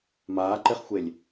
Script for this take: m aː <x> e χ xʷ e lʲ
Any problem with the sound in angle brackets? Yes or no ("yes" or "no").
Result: yes